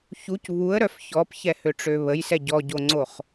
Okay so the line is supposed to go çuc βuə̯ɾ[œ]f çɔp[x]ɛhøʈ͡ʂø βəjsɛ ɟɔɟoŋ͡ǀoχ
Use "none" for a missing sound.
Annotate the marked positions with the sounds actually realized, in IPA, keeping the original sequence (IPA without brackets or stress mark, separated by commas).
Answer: œ, ç